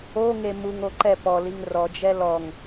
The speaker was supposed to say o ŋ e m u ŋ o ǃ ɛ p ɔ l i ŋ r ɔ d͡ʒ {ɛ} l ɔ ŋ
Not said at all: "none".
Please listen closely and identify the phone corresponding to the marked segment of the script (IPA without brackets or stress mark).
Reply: ɛ